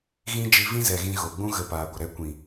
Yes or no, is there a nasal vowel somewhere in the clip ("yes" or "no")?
yes